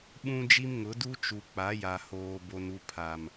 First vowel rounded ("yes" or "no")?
yes